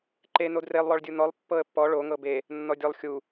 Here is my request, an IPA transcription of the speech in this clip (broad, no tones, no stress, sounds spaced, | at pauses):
ǃ e n o d r e lˠ w ɔ ɭ dʲ u n ɔ lˠ pː ɤ ə̯ pː ɔ ɭ o ŋ ɤ b e | nː ɔ dʲ ɔ lˠ xʲ u